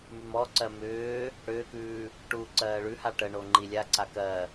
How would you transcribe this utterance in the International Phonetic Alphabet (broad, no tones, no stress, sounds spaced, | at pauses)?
m ʉ m ɔ ǀ ɜ m ʏː | ɽ ʏː k ʉː | ʈ uː ǀ ɜː ɭ ʉ h a ʈ ə ɳ o ŋ͡ǃ i lʲ a ǀ a k ɜ